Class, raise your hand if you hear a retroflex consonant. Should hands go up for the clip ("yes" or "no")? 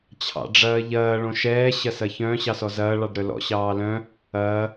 yes